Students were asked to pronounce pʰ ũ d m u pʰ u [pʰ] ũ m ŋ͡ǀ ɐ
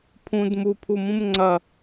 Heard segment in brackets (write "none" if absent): m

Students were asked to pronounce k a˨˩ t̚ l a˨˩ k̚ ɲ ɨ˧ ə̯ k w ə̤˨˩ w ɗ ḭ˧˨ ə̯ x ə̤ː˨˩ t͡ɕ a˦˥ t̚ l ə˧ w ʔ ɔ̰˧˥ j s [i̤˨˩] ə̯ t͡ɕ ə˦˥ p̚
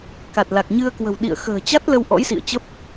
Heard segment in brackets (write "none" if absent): ḭ˧˨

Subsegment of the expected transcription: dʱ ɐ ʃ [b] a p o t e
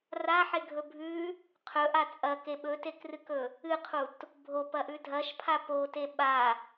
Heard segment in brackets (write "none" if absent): pʰ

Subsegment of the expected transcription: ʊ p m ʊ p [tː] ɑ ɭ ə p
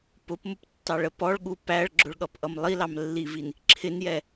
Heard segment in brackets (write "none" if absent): tː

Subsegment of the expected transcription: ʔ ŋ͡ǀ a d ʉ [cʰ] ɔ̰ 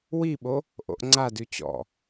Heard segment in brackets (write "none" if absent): t͡ɕ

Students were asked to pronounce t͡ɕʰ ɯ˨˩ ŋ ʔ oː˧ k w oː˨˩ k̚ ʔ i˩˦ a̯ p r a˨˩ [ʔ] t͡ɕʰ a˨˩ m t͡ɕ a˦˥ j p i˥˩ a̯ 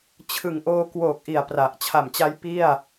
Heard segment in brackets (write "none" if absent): ʔ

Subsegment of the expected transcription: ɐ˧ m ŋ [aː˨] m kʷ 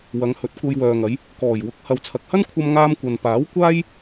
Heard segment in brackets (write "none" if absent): aː˧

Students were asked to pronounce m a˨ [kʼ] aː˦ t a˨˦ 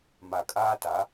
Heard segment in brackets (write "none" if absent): kʼ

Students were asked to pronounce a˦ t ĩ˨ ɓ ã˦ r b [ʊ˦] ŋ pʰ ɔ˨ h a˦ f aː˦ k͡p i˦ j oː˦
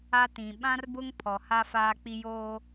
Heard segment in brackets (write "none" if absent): ʊ˦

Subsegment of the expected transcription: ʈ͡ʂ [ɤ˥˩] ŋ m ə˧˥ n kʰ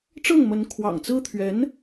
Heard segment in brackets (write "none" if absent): ɤ˥˩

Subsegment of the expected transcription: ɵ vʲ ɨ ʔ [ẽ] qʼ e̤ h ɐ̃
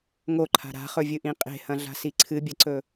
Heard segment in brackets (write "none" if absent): ĩ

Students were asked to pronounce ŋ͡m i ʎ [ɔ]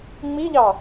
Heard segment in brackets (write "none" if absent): ɑ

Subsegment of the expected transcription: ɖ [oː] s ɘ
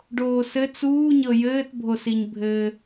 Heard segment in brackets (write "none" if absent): oː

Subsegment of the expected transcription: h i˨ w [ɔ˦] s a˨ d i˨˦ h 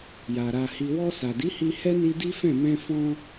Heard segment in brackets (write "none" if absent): ɔ˧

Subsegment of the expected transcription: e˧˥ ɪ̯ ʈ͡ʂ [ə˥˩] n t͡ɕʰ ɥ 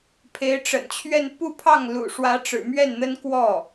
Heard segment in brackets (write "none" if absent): ə̰˨˩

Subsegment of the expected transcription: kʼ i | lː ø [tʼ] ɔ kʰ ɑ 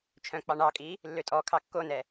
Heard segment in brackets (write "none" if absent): tʼ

